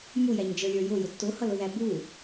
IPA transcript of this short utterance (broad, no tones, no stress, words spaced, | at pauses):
mujæɲd͡ʒə˞lʲə˞ jʊjʊ tːʊhʌlʊðæ bu